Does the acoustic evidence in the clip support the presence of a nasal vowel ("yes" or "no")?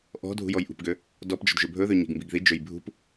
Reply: no